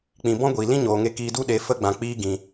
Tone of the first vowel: low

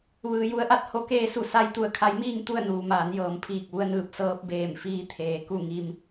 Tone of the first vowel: low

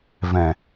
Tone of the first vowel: low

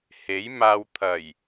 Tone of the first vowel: rising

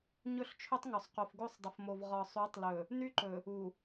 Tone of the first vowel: falling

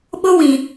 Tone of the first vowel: high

